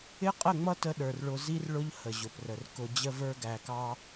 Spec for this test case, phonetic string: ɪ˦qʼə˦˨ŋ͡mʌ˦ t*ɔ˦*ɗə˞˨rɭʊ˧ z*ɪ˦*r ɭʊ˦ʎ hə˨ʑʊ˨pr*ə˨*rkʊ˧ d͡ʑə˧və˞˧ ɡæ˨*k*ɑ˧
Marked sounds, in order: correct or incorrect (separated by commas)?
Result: incorrect, incorrect, correct, correct